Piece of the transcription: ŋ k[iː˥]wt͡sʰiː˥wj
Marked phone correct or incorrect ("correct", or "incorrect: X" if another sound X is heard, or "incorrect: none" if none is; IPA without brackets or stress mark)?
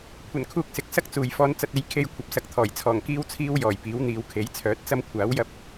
correct